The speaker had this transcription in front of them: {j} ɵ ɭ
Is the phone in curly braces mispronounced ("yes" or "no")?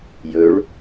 no